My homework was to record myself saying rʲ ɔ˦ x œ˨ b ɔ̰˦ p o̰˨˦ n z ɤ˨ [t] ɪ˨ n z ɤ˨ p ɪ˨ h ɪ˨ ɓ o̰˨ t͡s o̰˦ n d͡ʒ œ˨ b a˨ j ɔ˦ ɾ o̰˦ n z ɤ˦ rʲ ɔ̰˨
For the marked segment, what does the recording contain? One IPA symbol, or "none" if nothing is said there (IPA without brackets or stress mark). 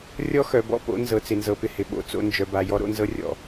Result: t͡s